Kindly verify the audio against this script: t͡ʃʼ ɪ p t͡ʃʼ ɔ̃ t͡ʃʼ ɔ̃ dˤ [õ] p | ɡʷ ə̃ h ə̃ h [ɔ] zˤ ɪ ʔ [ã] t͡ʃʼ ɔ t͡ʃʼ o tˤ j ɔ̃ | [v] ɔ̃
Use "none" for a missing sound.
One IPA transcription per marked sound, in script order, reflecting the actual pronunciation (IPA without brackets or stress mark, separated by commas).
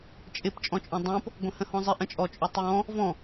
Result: õ, ɔ̃, ə̃, v